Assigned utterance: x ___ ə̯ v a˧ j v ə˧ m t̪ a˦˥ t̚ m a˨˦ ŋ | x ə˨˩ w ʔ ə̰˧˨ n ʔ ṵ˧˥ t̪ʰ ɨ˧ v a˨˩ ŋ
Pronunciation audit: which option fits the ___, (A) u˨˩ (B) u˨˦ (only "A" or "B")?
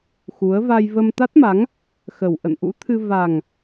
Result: B